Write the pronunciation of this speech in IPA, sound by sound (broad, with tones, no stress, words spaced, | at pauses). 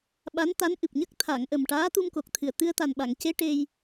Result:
ɓa˧˥nt̪a˧˥nʔɨ˨˩p̚ɲə˦˥k̚ t̪ʰa˨˩˨ŋʔə˨˩m ʈaː˧˥t̪u˧mko˨˩k̚t̪ʰɨ˨˩ə̯ t̪ɨ˧ə̯t̪a˨˩nɓa˨˩˨ŋce˧˥ ʈe˧j